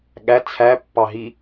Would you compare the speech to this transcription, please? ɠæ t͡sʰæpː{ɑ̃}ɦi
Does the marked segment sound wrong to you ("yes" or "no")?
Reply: yes